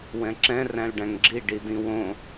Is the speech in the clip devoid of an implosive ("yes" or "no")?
yes